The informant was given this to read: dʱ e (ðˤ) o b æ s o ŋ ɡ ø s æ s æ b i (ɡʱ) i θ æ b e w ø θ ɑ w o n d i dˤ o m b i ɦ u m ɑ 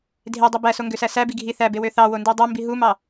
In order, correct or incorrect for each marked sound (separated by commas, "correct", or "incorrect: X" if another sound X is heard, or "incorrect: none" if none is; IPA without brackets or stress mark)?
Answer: incorrect: dˤ, correct